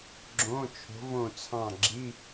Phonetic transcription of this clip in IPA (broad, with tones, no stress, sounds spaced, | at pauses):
ɡ͡ǁ õ˧˥˧ t͡ʃʰ o̤˧˥ v õ˦˨ t͡sʰ ɑ̃˦˨ ɡ͡ǁ i˧˥˧